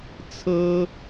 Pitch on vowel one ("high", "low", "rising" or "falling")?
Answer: high